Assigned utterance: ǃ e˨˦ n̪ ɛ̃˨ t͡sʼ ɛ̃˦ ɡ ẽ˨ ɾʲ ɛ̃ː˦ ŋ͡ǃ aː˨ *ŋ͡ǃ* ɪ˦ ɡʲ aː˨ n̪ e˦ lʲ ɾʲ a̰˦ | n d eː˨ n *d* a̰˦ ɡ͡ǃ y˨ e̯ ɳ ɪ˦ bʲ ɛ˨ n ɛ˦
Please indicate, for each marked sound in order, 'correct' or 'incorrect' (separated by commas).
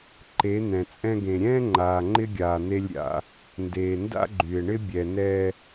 correct, correct